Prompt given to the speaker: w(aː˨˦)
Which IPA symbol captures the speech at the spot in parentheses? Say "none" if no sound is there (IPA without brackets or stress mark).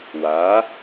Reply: aː˨˦